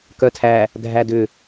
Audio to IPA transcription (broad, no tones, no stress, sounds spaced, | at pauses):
k œ tʰ æ | dʱ æ d ʏ